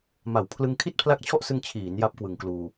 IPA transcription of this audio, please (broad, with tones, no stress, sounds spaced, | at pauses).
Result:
m a˨˩ w pʰ l ɯ˧ ŋ kʰ i˥˩ t̚ pʰ l a˦˥ k̚ t͡ɕʰ ɔ˥˩ ʔ s ɯ˧ ŋ t͡ɕʰ iː˩˦ n j a˦˥ p̚ k w ɯ˨˩ ŋ k l uː˧